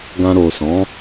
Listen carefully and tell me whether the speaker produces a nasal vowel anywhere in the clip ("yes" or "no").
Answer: yes